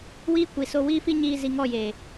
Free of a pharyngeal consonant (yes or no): yes